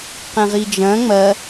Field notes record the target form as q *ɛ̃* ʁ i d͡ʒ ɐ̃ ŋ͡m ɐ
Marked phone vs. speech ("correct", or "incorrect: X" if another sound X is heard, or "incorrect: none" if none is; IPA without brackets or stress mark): correct